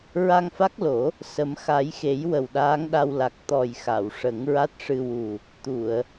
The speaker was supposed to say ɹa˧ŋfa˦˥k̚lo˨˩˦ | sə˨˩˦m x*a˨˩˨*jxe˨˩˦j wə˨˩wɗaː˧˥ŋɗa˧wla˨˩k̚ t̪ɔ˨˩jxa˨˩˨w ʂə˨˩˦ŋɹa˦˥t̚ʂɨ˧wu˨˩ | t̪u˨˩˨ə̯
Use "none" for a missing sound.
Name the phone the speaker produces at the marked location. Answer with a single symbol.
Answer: a˨˩˦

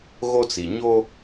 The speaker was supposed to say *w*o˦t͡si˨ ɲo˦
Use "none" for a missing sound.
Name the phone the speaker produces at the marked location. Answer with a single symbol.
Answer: ɣ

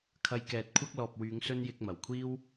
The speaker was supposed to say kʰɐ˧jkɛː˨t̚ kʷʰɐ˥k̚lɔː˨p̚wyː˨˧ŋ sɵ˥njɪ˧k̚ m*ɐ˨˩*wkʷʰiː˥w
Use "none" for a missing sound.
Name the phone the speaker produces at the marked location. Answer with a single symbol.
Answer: ɐ˨˩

